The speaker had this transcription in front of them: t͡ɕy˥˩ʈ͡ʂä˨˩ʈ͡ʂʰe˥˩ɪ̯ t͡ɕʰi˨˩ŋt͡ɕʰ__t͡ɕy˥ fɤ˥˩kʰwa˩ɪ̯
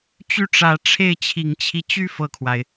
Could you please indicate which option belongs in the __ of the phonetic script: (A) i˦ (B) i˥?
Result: A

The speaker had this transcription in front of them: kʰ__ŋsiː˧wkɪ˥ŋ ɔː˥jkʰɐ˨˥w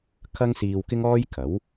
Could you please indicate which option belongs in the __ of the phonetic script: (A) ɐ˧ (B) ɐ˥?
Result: B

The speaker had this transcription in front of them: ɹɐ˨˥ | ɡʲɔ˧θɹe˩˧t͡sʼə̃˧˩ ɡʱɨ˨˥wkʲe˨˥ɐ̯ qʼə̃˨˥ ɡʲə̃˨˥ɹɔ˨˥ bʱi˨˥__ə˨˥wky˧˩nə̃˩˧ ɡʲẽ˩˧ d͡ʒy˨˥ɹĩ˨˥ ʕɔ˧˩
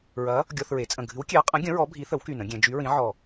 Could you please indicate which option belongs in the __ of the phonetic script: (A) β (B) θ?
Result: B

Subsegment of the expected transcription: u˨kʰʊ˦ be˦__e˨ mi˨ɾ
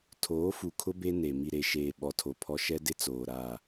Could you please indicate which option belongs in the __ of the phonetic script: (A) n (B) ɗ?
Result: A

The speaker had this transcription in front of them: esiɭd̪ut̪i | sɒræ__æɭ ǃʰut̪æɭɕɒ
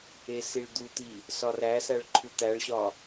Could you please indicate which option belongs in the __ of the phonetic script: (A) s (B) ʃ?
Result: A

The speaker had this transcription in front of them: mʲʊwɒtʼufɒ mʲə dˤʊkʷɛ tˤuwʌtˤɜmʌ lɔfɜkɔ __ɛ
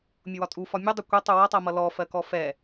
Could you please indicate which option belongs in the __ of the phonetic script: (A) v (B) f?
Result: B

